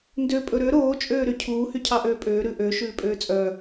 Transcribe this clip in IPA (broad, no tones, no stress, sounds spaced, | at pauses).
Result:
n d ø pʼ ɵ ɾ ø ɾ oː t͡ʃʼ øː ɾ y cʰ uː h y cʰ ɑ ʔ øː pʼ øː ɾ ʉ ʔ ø ʃ ʉː pʼ øː t͡sʼ œ